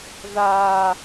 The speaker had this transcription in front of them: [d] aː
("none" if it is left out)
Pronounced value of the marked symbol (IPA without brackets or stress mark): ð